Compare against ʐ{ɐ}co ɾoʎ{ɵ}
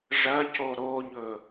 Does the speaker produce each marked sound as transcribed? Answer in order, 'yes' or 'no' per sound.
yes, yes

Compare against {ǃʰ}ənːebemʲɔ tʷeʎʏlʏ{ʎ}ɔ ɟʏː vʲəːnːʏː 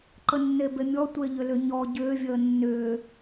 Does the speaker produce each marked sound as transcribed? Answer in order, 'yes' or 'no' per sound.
no, no

